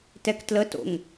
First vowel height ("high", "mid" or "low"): mid